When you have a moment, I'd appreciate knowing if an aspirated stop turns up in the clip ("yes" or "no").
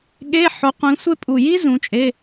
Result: no